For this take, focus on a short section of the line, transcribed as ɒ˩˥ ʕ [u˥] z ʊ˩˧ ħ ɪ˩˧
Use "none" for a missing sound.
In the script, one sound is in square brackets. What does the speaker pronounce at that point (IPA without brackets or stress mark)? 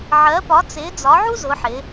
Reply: u˥